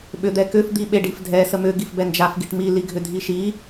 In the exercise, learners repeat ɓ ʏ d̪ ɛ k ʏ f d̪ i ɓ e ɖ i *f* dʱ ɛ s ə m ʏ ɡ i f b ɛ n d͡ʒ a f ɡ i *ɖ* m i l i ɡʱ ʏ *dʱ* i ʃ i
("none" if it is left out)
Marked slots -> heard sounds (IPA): f, ʈ, dʱ

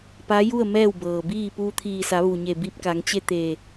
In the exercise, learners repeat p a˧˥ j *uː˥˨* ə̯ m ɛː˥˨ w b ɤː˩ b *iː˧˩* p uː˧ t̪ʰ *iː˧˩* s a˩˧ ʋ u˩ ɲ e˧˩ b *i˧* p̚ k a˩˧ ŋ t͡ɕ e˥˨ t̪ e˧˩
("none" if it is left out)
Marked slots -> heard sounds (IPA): u˥˨, iː˥˨, iː˧˩, i˧

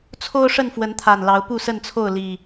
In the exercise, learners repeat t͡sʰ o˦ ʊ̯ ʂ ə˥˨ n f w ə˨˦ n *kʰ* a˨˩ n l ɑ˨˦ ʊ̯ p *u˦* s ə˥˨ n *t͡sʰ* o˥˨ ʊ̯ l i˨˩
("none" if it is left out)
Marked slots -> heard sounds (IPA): t̪ʰ, u˥˨, t͡sʰ

